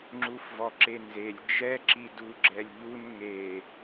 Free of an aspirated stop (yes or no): yes